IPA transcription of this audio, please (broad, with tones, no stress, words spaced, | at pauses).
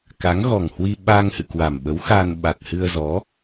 ka˨˦ŋɣɔ˨˩ŋhwi˧ ɓa˧ŋ hɨ̰˧˨kwa˨˩mɓə˨˦w xa˧n ɓa˨˩t̚hɨ˧ə̯zɔ˨˦